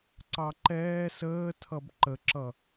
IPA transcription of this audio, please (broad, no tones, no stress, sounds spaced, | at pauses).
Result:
ǀ ɑ ǃ ɛː s əː tʰ ʌ b ǃ ə ǁ ʌ